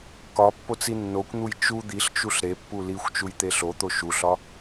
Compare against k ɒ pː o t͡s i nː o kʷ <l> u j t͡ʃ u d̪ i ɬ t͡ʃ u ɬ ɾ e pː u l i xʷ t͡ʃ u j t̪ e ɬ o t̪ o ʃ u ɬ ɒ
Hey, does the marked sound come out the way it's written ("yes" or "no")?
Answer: no